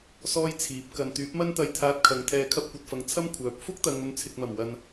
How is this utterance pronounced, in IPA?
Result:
sɔː˥jt͡sʰiː˨˥p̚ kɐ˨nt̪yː˨˥p̚mɐ˥nt̪ɐ˧j t̪ʰaː˧t̚kʰɐ˨ŋ t̪ʰɛː˨˧kʰɐ˧p̚kʷɐ˨t̚fɐ˨ŋ t͡sʰɐ˥m kʷʰœː˨p̚ fʊ˥k̚t̪ɐ˨ŋ ɵ˨˧nt͡sʰɪ˨k̚mɐ˨˩m wɐ˨n

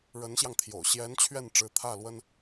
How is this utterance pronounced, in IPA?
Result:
ɻə˧˥nɕjɑ˧ŋt̪ʰjo̰˨˩ʊ̯ ɕjɛ˧˥n t͡ɕʰɥɛ˥˩nʈ͡ʂɻ̩˧˥t̪ʰä˥˩lwə˥n

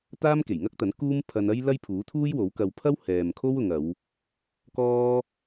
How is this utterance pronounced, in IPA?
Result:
t̪aː˥mke˨˩jŋɐ˥k̚t̪ɐ˨˥n kuː˥m pʰɐ˧n ɐ˥j lɐ˥jpʰuː˨˥t̪ʰuː˥jwo˨˥w kɐ˧w pʰɐ˥w hɛː˨mkʰo˥wʊ˨ŋɐ˨˧w | kɔː˥

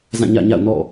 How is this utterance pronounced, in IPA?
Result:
zã˦˨ɲä̰˦˨ɲa̰˦˨ʊ̯nɔ̰˦˨

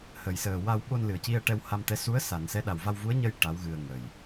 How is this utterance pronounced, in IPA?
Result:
hə˨˩jsəː˨˩wa˧w ɓo˧n lɨ˨˩˨ə̯ci˧ə̯ ʈɛ˧wha˧mt̪ɛ˧˥ su˧˥ə̯ sa˨˩˨nsɛ˧˥ɗa˨˩w va˧wvu˧˥ə̯ɲə˧j ʈa˧˥wɣɨ˧ə̯ŋə˨˩j

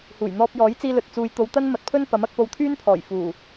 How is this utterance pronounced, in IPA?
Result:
huː˨˩jn̪ɔː˧p̚jɔː˨˥j t͡siː˧lɵ˨t̚t͡suː˨jt̪o˨˧w t̪ɐ˥nmɐ˨˥t̚pʰɵ˥n pɐ˨˥mɐ˧k̚ po˧wt̪ʰyː˥npʰɔː˨˩j fuː˨˩

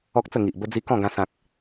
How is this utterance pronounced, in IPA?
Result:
ɔ˦k̚t͡sə˥˧ ŋi˨ʔ bə˧d͡zi˧ kɔ̃˥˧ɡã˧ sã˨k̚

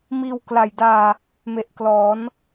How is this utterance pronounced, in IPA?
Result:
miː˧w kla˨˩jdaː˧ | me˨˩ʔklɔː˩˦n

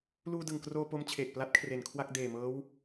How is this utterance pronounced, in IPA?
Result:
luː˧dɯ˨˩ŋkroː˧ po˦˥mt͡ɕʰeː˨˩k̚pla˦˥t̚ kʰre˨˩nkʰwa˥˩k̚ deː˨˩mɤː˦˥w

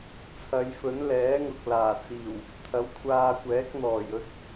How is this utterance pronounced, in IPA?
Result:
t͡sʰɐ˨˧jfɵ˨˥n lɛː˨˥ŋʊ˨k̚ laː˨˩t͡siː˨˩w | t̪ʰɐ˨˥wkʷʰaː˧kʷɛː˨˥k̚n̪ɔː˨˩j ɵ˧t̚

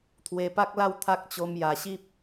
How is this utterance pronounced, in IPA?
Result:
t̪ʰwe˧pa˦k̚la˥˧w t̪ʰa˦k̚ t͡ɕo˧mja˨˩ɕi˦p̚

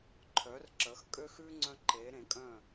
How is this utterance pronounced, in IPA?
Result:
ǃʰœ˩˧rǁə˩˧x kʼø˧xʉ˧ ŋ͡ǀœ̃˧ǃe˩˧ɾẽ˩˧kʼœ̃˧˩

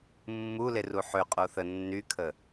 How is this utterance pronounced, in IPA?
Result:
mːuleru ħø qʼoθə nːykʰə

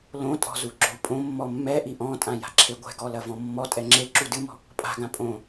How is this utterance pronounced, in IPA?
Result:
lõtʼɔ̤zuɡ͡ǁo pʼõmːɔ mːɛʔi ʔɔ̃tʼãja̤ǁʰe ɡʷɛ̤ɡɔlɐvɔ̃ mːɔtʼɛ ŋ͡ǁeǁu dɨmɔ̤ | pʼa̤ɡã pʼõ

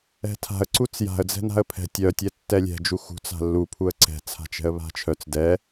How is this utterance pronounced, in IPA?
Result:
ɛ̤tʰa̤ə̯ ǀut͡sja̤ə̯ d͡zɛ̤na̤ə̯pʰɛ̤ tʲœ tʲɛtːɛlʲɛ̤ d͡ʒuxṳ t͡sa̤lːu pʰuə̯ǀɛ̤ t͡sʰa̤t͡ʃɛ̤ə̯βa̤t͡ʃʰœt͡s dɛ

